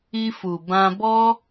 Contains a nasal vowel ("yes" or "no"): yes